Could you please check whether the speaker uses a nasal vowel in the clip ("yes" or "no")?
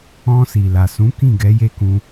yes